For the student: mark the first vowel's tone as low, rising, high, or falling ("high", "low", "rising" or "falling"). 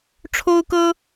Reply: high